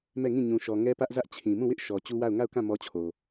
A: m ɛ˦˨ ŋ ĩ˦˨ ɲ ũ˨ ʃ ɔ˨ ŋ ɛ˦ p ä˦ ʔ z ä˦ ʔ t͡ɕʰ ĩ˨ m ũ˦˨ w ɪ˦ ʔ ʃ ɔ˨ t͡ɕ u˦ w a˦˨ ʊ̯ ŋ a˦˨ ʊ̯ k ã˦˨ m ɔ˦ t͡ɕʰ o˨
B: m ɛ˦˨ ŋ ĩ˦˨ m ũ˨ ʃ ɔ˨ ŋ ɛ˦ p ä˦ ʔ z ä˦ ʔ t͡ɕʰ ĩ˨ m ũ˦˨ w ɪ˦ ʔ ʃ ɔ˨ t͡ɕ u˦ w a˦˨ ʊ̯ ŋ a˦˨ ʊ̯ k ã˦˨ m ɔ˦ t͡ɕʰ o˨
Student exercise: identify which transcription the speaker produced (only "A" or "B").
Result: A